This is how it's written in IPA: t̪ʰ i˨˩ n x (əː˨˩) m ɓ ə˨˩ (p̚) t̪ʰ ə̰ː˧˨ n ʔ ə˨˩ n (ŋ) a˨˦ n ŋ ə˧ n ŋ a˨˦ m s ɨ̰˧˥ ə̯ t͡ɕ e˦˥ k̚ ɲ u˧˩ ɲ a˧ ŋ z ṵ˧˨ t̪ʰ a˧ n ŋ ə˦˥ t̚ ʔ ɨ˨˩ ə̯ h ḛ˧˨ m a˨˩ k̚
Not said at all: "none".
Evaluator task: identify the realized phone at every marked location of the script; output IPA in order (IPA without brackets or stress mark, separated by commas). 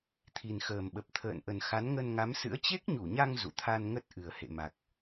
əː˨˩, p̚, x